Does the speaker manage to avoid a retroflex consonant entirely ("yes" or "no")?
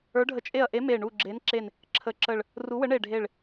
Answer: no